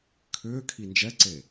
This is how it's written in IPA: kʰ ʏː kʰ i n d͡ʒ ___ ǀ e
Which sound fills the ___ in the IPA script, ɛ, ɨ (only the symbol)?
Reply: ɛ